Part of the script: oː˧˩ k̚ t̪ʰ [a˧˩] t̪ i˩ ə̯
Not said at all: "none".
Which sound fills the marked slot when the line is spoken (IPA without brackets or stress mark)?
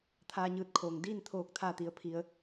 a˧˩